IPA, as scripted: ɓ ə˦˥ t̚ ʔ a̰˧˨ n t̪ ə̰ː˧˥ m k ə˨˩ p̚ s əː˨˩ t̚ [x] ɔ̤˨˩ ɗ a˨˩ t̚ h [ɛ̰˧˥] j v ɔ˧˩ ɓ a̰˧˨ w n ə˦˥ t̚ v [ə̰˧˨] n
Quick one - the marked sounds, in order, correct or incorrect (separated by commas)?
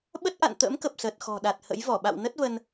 correct, incorrect, incorrect